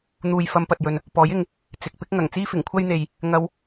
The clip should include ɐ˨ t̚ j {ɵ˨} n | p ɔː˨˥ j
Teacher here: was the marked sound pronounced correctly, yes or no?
yes